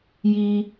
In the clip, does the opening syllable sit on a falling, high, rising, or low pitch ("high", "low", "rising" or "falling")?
high